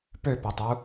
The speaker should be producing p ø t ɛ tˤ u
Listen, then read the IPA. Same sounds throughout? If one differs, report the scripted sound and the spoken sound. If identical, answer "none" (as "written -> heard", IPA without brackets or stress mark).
t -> p